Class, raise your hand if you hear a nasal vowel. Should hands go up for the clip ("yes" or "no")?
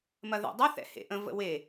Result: yes